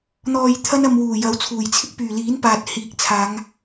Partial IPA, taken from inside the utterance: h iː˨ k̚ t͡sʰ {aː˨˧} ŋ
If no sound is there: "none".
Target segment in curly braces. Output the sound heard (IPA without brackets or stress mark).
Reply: aː˨˧